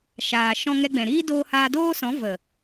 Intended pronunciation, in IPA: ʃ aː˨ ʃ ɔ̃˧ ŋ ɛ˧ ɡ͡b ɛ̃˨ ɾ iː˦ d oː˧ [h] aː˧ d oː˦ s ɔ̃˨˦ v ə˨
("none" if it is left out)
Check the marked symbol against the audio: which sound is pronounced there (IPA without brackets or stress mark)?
h